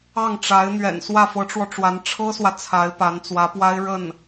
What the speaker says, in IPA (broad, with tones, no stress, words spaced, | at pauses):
ɑ˥˩ŋʈ͡ʂa˧˥ɪ̯ n̪ɥɛ̰˨˩n swä˥˩fɤ˧˥ʈ͡ʂwɔ˧ʈ͡ʂwa˧˥n ʈ͡ʂʰɤ˥swä˨ t͡sʰa˧˥ɪ̯pa˧˥nt͡swä˧˥pwa˥ɪ̯ ɻə˥˩n